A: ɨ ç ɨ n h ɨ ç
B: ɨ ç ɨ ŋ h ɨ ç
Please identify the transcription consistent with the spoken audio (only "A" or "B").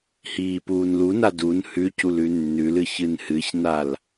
A